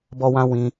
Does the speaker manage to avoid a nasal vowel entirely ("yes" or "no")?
no